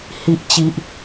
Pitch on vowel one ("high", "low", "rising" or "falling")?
low